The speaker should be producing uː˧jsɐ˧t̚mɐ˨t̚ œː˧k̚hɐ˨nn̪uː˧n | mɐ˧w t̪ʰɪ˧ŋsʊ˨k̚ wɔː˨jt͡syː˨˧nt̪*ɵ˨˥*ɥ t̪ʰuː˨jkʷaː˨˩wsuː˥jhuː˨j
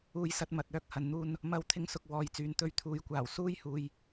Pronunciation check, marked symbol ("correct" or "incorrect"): incorrect